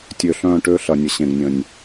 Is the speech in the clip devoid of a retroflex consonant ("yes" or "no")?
no